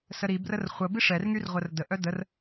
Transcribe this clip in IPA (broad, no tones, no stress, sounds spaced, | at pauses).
s ə ɾ i b r ə r χʷ ə b i ʂ ɛ r ŋ y r ʁʷ ə r d ə ʔ œ d ə r